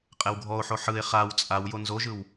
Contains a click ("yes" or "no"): no